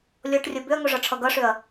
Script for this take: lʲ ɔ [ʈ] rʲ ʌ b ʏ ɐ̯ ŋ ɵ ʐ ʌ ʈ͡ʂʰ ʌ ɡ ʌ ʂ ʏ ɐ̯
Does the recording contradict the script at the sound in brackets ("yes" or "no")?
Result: no